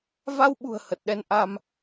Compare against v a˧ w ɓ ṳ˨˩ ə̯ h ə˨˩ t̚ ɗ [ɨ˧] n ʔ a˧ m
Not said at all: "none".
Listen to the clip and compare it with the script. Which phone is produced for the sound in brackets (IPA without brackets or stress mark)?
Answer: ɛ˧